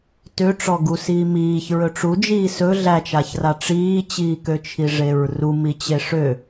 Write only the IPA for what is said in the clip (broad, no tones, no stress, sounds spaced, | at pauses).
t ø ʈ͡ʂ ɔ ɡ u s iː m iː ç ɹ ɵ ʈ͡ʂ u d͡ʒ iː s ɵ ɮ æ t͡ʃ a ç r a ʈ͡ʂ iː t͡ɕ iː k ø t͡ʃʰ i ʐ e ɹ r u m i t͡ɕ e ʂ ø